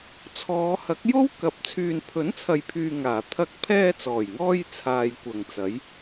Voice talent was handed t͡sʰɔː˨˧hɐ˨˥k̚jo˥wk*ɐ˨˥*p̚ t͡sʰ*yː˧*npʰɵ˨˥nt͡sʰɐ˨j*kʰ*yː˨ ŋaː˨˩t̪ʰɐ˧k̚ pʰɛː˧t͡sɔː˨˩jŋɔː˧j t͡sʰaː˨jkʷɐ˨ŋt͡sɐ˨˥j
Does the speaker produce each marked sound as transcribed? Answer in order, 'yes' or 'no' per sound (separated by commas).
yes, no, no